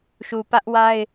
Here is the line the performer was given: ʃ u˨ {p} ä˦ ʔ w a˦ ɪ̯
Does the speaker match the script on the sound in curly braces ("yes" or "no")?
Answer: yes